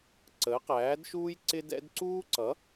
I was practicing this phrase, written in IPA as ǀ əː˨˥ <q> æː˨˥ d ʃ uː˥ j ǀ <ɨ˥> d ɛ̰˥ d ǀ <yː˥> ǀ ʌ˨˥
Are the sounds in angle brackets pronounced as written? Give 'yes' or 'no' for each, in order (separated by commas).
yes, no, no